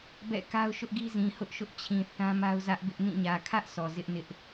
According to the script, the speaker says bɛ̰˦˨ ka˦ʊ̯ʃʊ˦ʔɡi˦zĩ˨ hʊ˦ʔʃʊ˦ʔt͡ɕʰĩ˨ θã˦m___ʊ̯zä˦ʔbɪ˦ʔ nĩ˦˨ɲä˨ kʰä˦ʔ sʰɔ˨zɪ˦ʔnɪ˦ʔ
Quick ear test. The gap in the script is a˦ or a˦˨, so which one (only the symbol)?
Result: a˦